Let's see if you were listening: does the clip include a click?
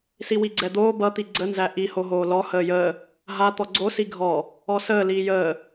yes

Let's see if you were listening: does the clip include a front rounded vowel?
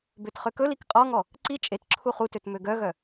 yes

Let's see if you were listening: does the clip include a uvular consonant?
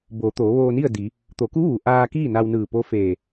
no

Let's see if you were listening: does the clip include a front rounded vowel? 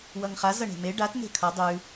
no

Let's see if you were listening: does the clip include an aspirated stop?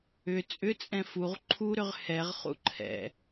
yes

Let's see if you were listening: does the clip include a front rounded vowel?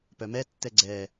yes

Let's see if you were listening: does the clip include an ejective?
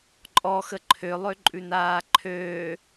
yes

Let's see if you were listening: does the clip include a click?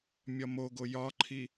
yes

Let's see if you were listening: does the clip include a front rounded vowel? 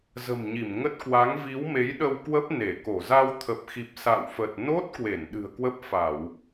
no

